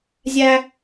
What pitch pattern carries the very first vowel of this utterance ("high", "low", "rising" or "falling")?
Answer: high